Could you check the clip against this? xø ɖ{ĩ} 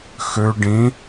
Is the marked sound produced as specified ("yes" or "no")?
yes